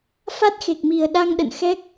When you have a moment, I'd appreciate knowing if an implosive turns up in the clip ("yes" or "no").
yes